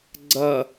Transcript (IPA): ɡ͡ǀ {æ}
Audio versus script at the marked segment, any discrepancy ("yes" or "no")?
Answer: yes